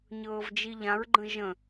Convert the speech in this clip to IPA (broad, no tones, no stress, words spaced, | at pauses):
ɲɤːvd͡ʒiʎãɹɡ͡ǃə̃ ʒə̃